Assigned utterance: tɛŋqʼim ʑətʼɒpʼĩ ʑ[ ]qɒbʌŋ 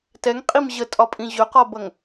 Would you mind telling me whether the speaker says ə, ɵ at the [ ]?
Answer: ɵ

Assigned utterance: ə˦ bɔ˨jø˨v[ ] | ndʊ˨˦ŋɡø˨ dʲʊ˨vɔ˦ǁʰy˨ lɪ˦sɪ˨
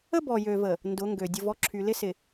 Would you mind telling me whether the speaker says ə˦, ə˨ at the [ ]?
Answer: ə˨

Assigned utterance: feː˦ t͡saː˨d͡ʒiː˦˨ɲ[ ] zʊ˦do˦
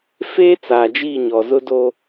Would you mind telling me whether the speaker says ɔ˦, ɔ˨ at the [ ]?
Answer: ɔ˨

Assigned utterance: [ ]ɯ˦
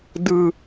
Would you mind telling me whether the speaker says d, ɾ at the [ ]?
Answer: d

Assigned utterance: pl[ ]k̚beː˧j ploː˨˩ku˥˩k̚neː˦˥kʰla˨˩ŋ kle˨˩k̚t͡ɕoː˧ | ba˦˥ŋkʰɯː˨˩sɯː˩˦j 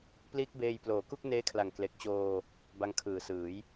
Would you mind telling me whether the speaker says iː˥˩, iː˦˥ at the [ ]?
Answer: iː˦˥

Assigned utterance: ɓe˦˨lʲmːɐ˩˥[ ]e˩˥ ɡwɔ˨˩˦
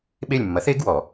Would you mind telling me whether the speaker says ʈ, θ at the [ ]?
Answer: θ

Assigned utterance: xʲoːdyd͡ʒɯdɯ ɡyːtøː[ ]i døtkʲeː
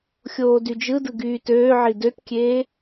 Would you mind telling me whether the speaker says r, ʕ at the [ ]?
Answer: ʕ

